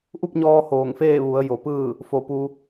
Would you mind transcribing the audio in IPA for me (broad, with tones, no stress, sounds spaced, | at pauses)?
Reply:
ʔ u˥˨ p̚ ɲ ɔː˧ h oː˧˩ ŋ f eː˥˨ ʋ u˩˧ ə̯ j o˩˧ p ɯː˥˨ | f o˧˩ p u˧